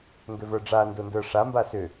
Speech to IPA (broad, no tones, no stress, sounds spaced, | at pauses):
ŋ ɡ ʏ v ə˞ ɖ͡ʐ a n d o n d ə˞ ʂ a m b a s ʏ